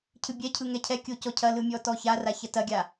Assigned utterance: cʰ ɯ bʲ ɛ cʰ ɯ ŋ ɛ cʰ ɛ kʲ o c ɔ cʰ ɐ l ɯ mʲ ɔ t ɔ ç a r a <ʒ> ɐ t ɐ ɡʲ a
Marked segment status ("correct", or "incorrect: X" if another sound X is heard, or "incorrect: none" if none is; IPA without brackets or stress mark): incorrect: ç